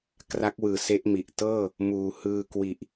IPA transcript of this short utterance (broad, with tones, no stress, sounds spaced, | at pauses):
k r a˦˥ k̚ w ɯː˨˩ s e˦˥ ʔ m i˨˩ ʔ t ɤː˥˩ | m uː˨˩ h ɯː˧ k w i˨˩ ʔ